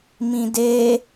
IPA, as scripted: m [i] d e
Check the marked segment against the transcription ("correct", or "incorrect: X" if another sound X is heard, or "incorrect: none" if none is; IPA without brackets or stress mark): incorrect: ĩ